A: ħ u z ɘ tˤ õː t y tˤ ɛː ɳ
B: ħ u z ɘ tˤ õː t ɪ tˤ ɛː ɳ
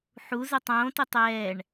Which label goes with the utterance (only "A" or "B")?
B